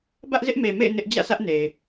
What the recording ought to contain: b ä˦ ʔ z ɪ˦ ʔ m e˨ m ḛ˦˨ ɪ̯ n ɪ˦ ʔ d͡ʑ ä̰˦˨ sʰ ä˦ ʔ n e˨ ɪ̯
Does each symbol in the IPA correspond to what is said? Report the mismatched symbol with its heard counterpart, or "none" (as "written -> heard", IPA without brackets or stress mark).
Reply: none